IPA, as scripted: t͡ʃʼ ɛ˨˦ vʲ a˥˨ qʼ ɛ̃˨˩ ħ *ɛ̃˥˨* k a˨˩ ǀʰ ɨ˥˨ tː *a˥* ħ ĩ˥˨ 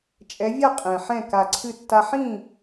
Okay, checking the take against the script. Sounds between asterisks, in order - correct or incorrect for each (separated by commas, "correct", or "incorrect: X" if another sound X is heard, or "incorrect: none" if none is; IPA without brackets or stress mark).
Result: correct, correct